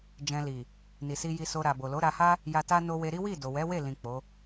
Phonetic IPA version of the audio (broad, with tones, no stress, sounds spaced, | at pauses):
d͡ʒ ɛ̃˧ l i˨ | n i˨ s i˧ j i˧ s o˧ ɾ a˨ b o˨ l o˨˦ ɾ a˧ h a˦ | j a˧ t a˦ n o˧ w e˧ ɾ i˦ w i˦˨ d o˨ w ɛ˨˦ w e˦˨ l ĩ˨ k͡p o˨˦